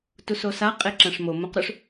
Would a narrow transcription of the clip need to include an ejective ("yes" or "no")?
yes